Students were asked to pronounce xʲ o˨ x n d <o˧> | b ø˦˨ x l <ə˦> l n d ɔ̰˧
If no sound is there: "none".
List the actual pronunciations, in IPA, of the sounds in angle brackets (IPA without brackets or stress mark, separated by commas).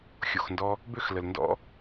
ɔ˧, ə˨